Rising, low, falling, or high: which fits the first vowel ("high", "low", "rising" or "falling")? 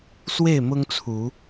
falling